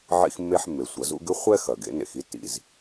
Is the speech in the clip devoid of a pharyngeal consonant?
no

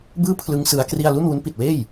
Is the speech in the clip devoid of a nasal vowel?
yes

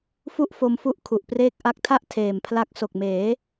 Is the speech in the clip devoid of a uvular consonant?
yes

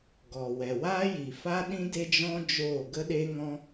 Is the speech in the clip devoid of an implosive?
no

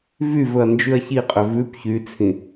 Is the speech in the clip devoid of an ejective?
no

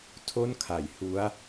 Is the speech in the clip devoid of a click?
yes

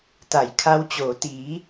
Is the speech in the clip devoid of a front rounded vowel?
yes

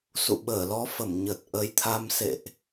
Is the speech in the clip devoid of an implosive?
no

